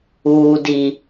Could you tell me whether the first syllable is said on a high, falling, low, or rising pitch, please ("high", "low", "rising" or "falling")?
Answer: low